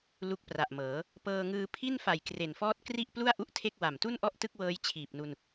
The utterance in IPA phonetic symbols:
l u˦˥ k̚ p r a˨˩ ʔ m ɤː˩˦ | p ɤː˧ ŋ ɯː˧ pʰ i˥˩ n f a˨˩ j k r e˨˩ n f ɔː˥˩ t̚ k r i˥˩ ʔ p l u˥˩ a̯ ʔ u˦˥ ʔ tʰ e˥˩ k̚ w a˨˩ m t u˥˩ n ʔ ɔ˥˩ ʔ t ɯ˥˩ k̚ w ɤː˦˥ j t͡ɕʰ iː˨˩ p̚ n u˧ n

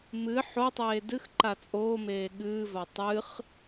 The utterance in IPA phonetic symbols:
m ɨ ħ o tˤ eː d ɨ x ǃ a t͡sʼ oː m eː ɠ ɨː v a tˤ ɨ χ

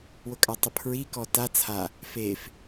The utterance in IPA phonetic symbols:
w ʊ kʼ a tˤ ʊ pʰ ɹ i k ɔ t a t͡sʰ a | f e f

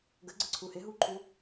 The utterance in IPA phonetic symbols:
ɡ ə ɡ͡ǀ ə ǀʰ u h ɪ ɦ u ǃʰ u

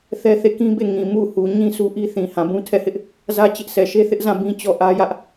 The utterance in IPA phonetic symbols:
θ ɛ˦ θ e˦˨ k ĩ˦ b e˦˨ ŋ ĩ˨ m u˦˨ h u˨ ɲ ĩ˦ s u˦ ʔ i˦ θ ĩ˨ h ã˨ b ũ˦ tʰ ɛ˦˨ h ɪ˦ ʔ | z ä˦ t͡ɕ ɪ˦ ʔ s ɛ˨ ʃ e˦ θ ɪ˦ ʔ z ã˦˨ b ĩ˦ t͡ɕ ɔ˦˨ ʔ ä˦ j ä˦ ʔ

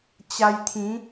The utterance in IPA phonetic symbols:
t͡ɕ a˧ j t̪ʰ ĩ˨˦

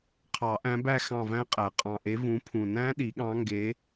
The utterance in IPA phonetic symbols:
qʰ ɑ˨˩˦ ʔ æ̃˨˦ b æ˦˨ x ɑ̃˦˨ v æ̃˦˥ qʼ æ˨˩ qʼ ɑ̃˨˩ ʔ e˨˦ v ũ˨˦ pʰ ũ˨˩ n æ̃˦˥ ɗ i˨˩˦ ɠ ɑ̃˨˦ ŋ ɡ e˨˦

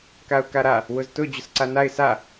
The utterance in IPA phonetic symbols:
k a ʊ̯ k a ɾ a | w ʊ z t ʊ d͡ʑ ʊ s ǀ a n a ɪ̯ s a

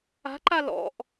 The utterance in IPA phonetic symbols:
a̤ ǃ a l ɔ̰ ʔ

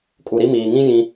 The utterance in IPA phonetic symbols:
kʼ u˨ ɾ i˦ m iː˨ ŋ ĩ˦ j ĩ˦

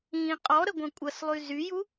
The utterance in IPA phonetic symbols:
ĩ qʼ ɔ ɾ ə ɡʷ ɐ̃ kʷʼ ɐ s lˠ y z y j u

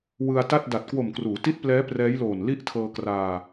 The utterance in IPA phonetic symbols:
w ɯ˧ a̯ t a˥˩ t̚ d a˨˩ t̚ k w o˨˩ m k r uː˩˦ t i˦˥ t̚ p l ɛː˦˥ p r ɛː˦˥ j l oː˨˩ n l i˦˥ ʔ tʰ ɤː˧ k r aː˧

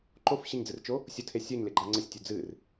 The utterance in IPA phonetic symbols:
ǃ o f ɕ ɪ ɲ d͡z ɨ r t͡ʃ o | sʲ ʊ tʰ e sʲ ə˞ ɲ l ɪ ɡ͡ǃ a ŋ͡ǀ ə sʲ tʲ u d͡z ɨ r

